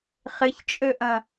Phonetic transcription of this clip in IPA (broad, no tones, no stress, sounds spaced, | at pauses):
χ ɪ ç t͡ʃʼ ø ʔ ɐ̃